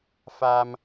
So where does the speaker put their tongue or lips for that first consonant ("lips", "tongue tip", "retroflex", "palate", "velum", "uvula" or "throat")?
lips